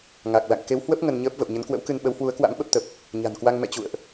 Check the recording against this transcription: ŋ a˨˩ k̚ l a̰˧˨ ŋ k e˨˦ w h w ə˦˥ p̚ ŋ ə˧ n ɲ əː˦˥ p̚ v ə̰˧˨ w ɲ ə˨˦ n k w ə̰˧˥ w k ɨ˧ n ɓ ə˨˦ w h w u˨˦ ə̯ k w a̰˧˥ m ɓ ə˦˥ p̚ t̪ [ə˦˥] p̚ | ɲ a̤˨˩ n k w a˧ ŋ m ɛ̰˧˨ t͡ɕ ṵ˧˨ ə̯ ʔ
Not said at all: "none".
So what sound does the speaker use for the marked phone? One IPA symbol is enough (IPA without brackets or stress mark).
ə˨˩